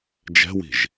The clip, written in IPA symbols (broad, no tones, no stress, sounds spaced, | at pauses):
d͡ʒ ɛ̤ w i̤ ʒ